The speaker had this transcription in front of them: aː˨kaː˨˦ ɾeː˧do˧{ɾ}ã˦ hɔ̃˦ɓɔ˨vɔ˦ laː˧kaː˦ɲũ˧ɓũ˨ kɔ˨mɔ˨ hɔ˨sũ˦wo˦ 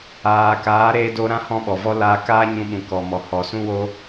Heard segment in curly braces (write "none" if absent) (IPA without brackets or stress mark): ɾ